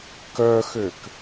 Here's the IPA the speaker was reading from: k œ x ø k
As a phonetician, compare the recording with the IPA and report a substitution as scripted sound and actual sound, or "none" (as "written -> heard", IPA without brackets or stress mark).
none